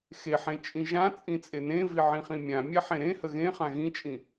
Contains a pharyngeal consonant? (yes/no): yes